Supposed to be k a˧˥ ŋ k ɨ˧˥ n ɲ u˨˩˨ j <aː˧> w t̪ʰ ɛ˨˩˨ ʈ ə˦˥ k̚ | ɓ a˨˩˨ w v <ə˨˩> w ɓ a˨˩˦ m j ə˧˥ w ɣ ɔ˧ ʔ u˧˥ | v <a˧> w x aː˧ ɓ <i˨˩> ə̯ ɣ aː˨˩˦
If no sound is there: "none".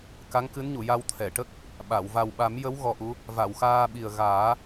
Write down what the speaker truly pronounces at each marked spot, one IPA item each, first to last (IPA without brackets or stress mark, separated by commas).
a˧, a˨˩, a˨˩˨, i˨˩